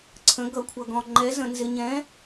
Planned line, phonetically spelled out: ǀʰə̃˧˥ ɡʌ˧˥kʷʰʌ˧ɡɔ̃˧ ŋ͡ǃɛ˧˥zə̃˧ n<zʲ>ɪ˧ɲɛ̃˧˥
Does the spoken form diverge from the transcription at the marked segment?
yes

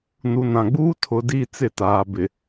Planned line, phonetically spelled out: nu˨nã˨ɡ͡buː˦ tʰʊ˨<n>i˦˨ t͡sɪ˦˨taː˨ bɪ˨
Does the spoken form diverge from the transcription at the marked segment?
yes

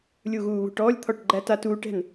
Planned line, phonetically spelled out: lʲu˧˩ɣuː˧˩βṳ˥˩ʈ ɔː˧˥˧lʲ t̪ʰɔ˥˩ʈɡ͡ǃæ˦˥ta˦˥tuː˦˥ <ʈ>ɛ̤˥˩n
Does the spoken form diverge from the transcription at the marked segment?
no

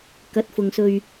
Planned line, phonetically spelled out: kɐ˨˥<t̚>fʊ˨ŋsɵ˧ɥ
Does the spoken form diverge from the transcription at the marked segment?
no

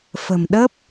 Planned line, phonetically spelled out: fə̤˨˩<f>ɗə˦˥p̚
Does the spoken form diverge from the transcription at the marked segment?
yes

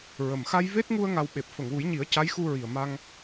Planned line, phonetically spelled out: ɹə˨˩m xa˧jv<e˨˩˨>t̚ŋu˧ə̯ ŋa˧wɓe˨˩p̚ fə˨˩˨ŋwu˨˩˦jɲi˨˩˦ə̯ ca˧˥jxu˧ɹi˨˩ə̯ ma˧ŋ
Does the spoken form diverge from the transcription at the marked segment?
yes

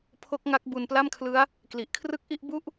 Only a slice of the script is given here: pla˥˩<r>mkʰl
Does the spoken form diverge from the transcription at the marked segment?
yes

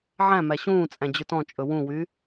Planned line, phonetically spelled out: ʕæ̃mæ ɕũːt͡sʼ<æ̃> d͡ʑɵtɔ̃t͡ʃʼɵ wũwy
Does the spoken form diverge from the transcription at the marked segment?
no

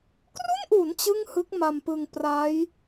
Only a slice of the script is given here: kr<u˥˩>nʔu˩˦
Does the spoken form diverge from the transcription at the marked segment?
no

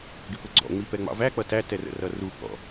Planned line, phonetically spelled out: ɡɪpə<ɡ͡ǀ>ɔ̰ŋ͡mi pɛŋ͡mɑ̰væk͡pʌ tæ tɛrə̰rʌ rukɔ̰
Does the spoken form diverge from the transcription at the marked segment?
no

